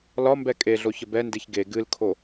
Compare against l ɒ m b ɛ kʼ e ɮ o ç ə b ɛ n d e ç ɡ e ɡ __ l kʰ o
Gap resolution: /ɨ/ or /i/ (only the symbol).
ɨ